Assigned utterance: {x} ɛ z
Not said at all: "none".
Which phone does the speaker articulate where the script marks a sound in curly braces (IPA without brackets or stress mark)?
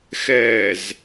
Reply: x